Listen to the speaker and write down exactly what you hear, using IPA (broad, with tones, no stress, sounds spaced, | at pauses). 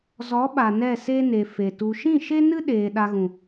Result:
z ɔ˨˦ ɓ a˨ n ɛ˦˨ s e˦ n e˨ f e˨ t u˧ ʃ ĩ˦˨ ʃ e˦ n ɨ˦ ɗ eː˧ ɗ a˧ ɣ ũ˨